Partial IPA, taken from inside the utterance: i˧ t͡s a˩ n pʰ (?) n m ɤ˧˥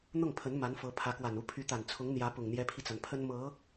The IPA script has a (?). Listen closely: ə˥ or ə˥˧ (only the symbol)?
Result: ə˥